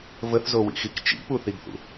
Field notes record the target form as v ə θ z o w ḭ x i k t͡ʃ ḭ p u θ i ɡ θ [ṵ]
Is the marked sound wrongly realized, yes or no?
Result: no